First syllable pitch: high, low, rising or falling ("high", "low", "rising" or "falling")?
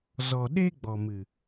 low